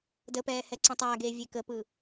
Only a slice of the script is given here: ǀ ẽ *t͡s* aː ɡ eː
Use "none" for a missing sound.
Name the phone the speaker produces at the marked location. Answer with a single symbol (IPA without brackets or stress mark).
tˤ